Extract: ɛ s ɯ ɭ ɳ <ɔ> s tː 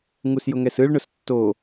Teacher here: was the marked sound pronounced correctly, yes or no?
no